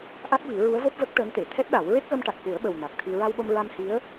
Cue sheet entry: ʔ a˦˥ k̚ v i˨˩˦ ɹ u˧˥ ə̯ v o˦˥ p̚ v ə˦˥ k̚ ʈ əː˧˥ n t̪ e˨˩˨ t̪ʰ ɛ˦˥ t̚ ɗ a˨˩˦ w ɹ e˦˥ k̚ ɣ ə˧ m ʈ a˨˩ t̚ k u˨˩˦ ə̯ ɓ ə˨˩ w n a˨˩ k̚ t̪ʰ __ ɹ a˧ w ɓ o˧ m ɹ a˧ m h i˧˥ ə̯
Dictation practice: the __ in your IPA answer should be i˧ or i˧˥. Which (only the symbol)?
i˧